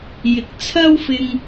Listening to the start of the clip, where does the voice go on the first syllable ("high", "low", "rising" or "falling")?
rising